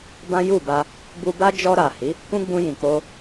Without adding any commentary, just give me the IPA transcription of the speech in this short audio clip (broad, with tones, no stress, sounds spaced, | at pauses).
b ã˦ j u˦˨ b a˧ | b u˧ b a˦ d͡ʒ ɔ˧ ɾ a˨ h i˨˦ | k ũ˦ ɡ͡b ũ˧ j ĩ˨ k͡p o˧